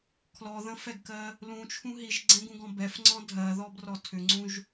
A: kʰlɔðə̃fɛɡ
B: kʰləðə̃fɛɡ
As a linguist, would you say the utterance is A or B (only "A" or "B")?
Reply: A